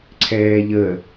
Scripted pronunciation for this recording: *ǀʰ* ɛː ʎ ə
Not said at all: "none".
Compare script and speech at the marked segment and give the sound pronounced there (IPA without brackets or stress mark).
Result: ǀʰ